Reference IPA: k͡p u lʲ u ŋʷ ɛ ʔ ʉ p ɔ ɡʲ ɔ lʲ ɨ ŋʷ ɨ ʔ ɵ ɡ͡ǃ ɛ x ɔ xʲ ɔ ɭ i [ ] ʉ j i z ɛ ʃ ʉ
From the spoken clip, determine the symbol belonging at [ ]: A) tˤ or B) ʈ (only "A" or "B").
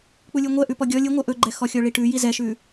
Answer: B